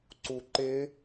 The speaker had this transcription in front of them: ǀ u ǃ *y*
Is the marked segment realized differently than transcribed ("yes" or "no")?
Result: yes